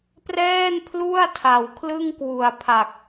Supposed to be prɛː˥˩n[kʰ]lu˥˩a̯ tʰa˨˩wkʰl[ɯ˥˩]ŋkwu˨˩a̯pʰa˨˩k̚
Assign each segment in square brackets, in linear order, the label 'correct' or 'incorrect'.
incorrect: pʰ, correct

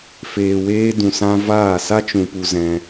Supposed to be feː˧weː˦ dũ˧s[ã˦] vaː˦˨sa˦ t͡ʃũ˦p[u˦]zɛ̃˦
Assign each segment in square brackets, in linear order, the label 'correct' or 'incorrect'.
correct, correct

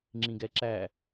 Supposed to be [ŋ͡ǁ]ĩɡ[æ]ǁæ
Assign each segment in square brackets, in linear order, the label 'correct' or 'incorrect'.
correct, incorrect: ɛ

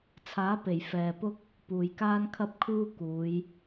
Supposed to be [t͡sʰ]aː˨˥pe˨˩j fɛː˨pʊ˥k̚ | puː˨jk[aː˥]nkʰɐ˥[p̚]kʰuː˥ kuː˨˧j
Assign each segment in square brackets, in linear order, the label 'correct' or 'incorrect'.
correct, correct, correct

